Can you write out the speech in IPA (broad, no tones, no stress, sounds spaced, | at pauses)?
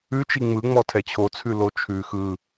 ʉ t͡ʃ i ŋ͡m ɯ ŋ͡m ɔ tʰ ɛ t͡ɕʰ o t͡sʰ ʉ l o t͡ʃʰ ʉ x ɯ